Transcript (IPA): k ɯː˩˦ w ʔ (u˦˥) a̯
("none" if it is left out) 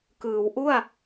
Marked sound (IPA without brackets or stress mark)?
u˥˩